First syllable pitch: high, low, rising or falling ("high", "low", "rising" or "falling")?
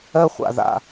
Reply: high